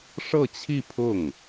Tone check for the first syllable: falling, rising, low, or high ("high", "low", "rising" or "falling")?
falling